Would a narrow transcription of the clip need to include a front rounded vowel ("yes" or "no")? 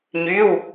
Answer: yes